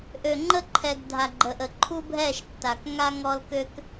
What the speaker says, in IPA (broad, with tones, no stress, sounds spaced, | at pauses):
ʔ ø˨ ŋ͡ǃ ə˥ ǃʰ ɛ˨ ɡ dʱ a˨ ɡ͡ǃ ə˨ ʔ ə˨ ǃʰ u˥ bʱ ɛ˥˧ ʃ tː a˨ k ŋ a˥ ŋ ɔ˥ l k ø˥ k